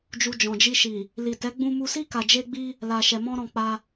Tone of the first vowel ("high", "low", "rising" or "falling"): low